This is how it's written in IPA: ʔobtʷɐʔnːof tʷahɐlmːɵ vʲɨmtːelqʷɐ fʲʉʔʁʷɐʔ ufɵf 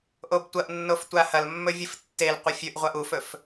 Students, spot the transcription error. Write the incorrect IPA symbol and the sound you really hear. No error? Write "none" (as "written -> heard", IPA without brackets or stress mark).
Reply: m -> f